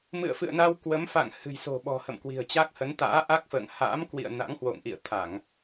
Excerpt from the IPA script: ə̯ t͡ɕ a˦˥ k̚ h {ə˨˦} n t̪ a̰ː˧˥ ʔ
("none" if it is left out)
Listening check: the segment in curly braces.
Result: ə˨˦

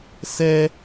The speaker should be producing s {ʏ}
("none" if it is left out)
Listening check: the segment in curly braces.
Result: ɛ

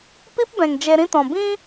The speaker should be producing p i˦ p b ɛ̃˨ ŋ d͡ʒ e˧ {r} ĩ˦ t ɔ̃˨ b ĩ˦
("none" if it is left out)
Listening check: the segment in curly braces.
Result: ɾ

